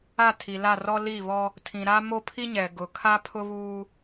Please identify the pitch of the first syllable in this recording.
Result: falling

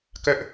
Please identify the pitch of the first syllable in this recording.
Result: falling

